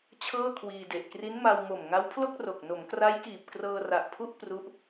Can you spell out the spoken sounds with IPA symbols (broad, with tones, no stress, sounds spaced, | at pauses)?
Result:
t͡ɕʰ ɤː˥˩ kʰ w iː˧ d e˨˩ ʔ k r i˦˥ n m a˧ w m o˨˩ m ŋ a˦˥ w pʰ l o˥˩ k̚ r o˨˩ k̚ n o˩˦ m k r a˦˥ j k iː˨˩ p̚ k r ɤː˧ r a˨˩ ʔ pʰ u˥˩ ʔ p r u˦˥ ʔ